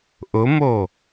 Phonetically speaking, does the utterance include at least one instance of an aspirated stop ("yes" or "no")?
no